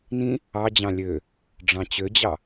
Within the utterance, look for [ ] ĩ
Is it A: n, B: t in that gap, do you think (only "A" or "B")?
A